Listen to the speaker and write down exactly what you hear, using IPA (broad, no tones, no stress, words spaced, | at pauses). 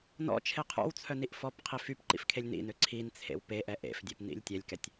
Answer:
nɔ̰t͡ʃʰe qʰɔ̰wt͡sʰœ niʔfɔpqʰi fypǃḭf kʰelʲnḭnø ǀʰint͡sʰḛw peʔɛ ʔḛfdʲep nḭlʲtʲɛlʲkɛtʲ